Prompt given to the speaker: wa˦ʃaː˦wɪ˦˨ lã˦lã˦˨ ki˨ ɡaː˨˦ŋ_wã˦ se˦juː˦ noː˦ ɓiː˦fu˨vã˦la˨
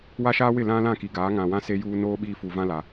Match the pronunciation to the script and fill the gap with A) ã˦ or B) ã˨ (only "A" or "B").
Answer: B